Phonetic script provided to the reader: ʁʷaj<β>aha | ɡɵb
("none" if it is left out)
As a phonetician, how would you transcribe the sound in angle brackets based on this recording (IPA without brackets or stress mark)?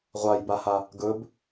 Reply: b